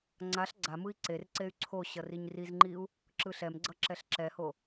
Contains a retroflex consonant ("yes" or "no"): no